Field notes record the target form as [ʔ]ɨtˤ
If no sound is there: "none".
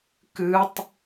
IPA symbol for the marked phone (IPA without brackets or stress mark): k